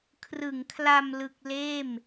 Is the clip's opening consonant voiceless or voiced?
voiceless